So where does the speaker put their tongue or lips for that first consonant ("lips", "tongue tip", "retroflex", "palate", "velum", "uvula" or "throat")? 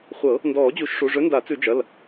uvula